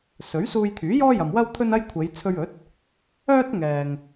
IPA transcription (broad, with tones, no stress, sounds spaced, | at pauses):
s ɵ˨˥ ɥ s uː˧ j t̪ʰ yː˨˥ j ɔː˥ j ɐ˨ m w ɐ˥ w t̪ʰ ɵ˥ n ɐ˥ j kʷʰ e˨˧ j t͡sʰ ɵ˧ ɥ ɵ˨˥ t̚ | œː˥ t̚ ŋ ɛː˨ ŋ